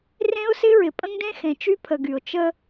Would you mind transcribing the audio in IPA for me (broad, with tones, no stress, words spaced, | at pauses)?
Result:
rẽ˦ʊ̯sɪ˦ ɹɪ˨pʼə̃˦ŋdẽ˦xẽ˨ t͡ʃy˦pʰə˨ ɡy˨ʊ̯ t͡ʃə˦